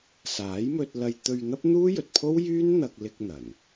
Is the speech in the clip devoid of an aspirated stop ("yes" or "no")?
no